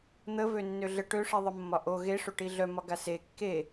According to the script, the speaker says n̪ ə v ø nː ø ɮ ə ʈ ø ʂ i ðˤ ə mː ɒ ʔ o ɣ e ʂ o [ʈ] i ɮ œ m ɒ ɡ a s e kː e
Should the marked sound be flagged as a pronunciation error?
no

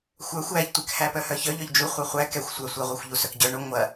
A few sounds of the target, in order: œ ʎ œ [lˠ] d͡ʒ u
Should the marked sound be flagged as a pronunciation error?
yes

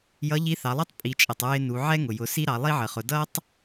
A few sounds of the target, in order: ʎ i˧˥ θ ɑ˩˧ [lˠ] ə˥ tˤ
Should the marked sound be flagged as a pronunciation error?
no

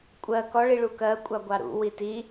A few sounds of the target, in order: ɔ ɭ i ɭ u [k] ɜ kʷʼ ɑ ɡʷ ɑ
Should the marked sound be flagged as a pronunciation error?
no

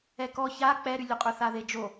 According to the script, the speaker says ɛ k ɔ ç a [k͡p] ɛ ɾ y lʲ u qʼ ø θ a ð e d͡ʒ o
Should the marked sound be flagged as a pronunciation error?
no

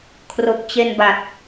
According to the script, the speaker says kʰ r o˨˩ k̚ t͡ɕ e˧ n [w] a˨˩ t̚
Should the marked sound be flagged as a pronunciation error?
yes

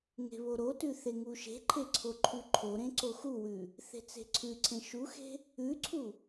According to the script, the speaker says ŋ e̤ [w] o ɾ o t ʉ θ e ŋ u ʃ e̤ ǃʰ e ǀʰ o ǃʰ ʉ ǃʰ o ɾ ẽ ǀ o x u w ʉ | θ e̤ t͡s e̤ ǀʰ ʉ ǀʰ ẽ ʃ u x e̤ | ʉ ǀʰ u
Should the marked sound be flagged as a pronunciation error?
yes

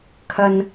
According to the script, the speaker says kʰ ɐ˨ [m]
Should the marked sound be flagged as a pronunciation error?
yes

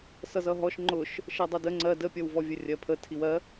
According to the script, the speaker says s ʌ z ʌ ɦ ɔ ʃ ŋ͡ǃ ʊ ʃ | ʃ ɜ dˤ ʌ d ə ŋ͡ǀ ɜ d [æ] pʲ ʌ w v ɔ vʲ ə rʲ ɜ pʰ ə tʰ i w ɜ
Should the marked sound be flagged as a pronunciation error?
yes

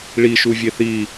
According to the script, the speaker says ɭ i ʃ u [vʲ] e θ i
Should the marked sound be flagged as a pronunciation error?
no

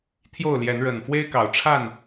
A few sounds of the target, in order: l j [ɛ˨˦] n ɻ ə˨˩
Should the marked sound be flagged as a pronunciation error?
no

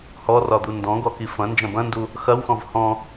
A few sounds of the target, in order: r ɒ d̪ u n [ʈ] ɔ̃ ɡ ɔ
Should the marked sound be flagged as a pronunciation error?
yes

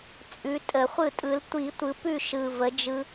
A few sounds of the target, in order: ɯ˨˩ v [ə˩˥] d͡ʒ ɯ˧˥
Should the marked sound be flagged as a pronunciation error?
no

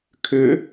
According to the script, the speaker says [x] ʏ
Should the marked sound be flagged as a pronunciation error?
yes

